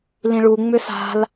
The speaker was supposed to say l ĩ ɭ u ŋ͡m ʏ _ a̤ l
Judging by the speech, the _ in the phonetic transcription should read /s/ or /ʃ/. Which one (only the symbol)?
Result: s